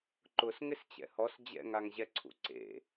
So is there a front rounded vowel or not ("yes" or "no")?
no